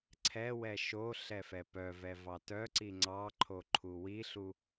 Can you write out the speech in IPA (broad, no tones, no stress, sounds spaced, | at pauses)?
ǀʰ ɛ w ɛ ʃ o ɬ ɛ f ɛ p œ v ɛ v ɑ t œ ǀ i ŋ͡ǀ ɑ ǃʰ o ǃʰ u w i ɬ u